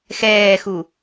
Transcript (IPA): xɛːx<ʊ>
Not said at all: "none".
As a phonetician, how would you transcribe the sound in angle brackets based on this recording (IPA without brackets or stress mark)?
u